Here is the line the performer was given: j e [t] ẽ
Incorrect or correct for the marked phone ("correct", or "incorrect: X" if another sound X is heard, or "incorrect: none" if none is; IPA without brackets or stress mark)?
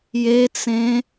incorrect: t͡s